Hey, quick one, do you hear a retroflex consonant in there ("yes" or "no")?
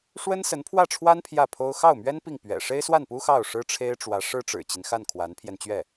yes